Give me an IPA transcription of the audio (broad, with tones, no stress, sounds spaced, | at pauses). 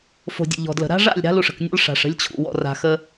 f o̤˨ dʲ ə̰˨ ʎ ɔ̤˨ d l ə̤˨ ɾ a̤˦ ʐ a̰˦˨ lʲ ɾ a̤˦ l u˨ ʂ ə̤˨ k nʲ ɔ̰˦ l ʂ a̤˨ ʂ ə̤˦ lʲ t͡ɕʰ ṵ˨ w ɔ̰˨ r a̤˨ x ə˦